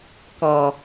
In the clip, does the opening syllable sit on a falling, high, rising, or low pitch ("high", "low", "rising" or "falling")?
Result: low